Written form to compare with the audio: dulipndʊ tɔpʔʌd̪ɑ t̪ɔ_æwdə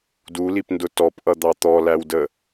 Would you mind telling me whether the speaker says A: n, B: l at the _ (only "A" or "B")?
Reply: B